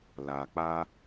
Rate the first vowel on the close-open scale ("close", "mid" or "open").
open